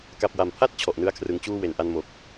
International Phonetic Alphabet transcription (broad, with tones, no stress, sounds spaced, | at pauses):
k a˨˩ p̚ w a˩˦ m pʰ a˥˩ t̚ t͡ɕʰ ɔ˨˩ ʔ n ɯ˥˩ a̯ kʰ r ɯ˧ ŋ t͡ɕ uː˥˩ w e˩˦ n ʔ a˦˥ n m o˨˩ k̚